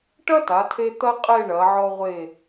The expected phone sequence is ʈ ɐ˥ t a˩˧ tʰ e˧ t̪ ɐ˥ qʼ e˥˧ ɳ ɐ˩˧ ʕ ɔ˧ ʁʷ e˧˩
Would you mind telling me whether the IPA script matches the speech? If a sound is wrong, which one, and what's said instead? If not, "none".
none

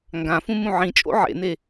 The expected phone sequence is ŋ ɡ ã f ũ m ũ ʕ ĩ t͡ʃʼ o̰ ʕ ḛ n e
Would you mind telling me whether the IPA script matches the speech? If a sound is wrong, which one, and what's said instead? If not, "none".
none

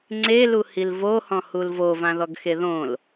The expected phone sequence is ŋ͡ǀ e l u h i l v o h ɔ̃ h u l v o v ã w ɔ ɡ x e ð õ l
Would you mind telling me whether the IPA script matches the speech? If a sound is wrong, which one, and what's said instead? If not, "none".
w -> ð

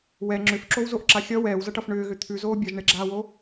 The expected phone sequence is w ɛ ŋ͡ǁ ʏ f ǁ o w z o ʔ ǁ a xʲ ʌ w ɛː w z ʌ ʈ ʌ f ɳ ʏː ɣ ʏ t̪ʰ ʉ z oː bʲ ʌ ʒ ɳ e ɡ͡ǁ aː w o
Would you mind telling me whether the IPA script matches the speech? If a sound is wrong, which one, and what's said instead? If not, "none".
none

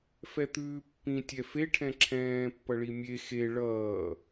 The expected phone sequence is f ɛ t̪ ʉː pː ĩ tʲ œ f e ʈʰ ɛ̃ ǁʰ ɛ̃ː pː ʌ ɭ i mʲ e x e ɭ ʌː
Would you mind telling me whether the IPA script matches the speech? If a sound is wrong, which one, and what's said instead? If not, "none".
œ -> ɛ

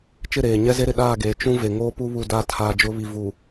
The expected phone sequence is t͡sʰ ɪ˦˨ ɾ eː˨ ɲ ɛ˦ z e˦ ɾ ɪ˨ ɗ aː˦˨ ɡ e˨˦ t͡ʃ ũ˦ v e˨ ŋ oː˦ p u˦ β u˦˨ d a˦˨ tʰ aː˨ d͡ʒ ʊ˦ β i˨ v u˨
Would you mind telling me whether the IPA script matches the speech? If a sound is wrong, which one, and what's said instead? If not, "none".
t͡sʰ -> t͡ʃ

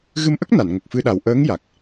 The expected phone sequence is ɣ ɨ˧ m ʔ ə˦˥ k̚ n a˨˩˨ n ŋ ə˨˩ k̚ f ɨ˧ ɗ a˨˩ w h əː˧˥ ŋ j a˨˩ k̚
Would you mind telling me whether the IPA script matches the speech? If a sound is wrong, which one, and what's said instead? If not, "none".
h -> ʔ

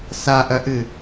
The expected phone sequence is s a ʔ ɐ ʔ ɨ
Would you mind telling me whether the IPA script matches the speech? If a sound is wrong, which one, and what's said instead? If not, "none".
none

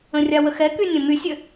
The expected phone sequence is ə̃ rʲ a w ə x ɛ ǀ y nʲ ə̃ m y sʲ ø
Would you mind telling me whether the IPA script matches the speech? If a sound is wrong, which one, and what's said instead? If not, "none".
ǀ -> k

